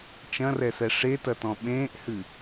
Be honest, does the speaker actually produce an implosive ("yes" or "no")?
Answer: yes